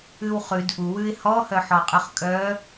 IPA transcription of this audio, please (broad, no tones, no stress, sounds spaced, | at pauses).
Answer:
ʉ w χ ʉ d ʔ u w ʉ ɪ̯ h ɔ h œ ħ ɔ qʼ ʉ χ kʼ œ